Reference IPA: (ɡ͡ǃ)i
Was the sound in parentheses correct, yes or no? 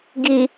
no